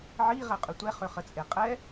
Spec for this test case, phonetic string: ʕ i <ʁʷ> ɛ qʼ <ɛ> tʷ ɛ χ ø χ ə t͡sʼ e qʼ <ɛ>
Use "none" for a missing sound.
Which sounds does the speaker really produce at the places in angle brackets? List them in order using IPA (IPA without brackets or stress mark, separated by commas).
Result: ʁ, ʏ, ɛ